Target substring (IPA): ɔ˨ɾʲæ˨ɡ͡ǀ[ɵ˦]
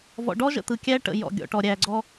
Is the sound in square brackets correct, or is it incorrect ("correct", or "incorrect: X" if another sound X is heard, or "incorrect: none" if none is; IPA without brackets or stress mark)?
incorrect: ɔ˦